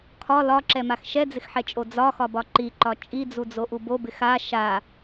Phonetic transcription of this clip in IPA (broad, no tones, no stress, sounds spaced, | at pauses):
kʰ ɒ l ɒ ǁ ɛ m a x ʃ ɛ d͡z ɪ x ħ ɛ t͡ʃʼ o d͡z ɒ x ɒ b ɒ ǃ i ǃ ɒ t͡ʃʼ i d͡z u d͡z o ʔ u b o b ɪ x a ʃ a